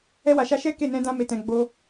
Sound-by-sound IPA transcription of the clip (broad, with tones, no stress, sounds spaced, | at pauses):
ɛ˧ w a˨ ʃ a˧ ʃ ɛ˦ k e˦˨ n ɛ̃˧ d ã˧ m e˨ t ɛ̃˨ ɡ͡b o˧